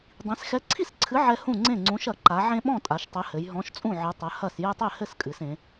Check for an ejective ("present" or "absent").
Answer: present